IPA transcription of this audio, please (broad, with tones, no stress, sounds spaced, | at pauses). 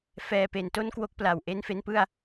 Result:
f ɛː˨˩ p e˨˩ n t o˥˩ n k w o˥˩ k̚ p l a˨˩ w ʔ e˦˥ n f e˧ n p ɯ˥˩ a̯